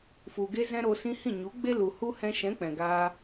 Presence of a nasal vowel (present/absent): present